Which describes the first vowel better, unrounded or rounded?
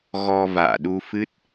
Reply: rounded